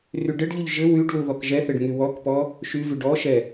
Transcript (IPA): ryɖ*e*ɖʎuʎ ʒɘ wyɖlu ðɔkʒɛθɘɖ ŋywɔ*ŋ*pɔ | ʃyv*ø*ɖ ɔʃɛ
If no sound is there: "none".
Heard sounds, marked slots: ɘ, k, y

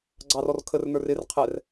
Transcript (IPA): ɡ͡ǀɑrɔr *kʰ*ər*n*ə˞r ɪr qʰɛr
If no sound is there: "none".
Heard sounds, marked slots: kʰ, n

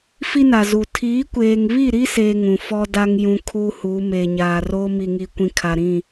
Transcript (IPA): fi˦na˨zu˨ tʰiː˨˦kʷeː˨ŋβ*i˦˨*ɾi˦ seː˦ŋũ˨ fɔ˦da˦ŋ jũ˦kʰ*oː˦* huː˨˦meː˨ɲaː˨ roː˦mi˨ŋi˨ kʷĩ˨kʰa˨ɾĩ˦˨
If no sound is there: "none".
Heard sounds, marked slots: i˦˨, uː˦

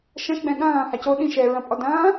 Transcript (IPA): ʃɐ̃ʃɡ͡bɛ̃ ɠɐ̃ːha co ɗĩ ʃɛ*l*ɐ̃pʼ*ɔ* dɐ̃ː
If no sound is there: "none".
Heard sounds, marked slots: ɹ, ɔ

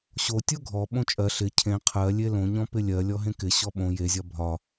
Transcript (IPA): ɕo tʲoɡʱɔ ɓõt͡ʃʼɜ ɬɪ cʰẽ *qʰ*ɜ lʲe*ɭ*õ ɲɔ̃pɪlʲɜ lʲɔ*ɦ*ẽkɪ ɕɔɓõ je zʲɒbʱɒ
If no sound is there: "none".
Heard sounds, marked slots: qʰ, l, ɦ

